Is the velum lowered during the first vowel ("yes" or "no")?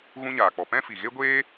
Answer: yes